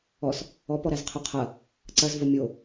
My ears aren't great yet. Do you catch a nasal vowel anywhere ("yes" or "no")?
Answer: no